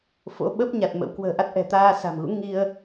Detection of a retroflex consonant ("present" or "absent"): absent